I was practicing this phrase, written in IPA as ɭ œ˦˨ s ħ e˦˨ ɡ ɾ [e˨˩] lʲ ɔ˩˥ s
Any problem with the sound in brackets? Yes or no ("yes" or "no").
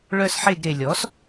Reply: no